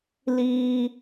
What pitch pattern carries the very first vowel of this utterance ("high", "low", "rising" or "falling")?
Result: high